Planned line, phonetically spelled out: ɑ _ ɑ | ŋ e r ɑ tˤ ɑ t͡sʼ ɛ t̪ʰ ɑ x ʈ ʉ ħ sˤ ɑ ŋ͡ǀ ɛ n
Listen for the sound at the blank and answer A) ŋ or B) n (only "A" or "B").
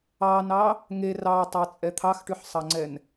B